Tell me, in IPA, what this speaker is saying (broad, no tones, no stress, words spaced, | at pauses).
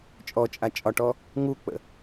t͡ʃʼɔt͡ʃʼa t͡ʃʼɒʈɔ | ŋuk͡pə̰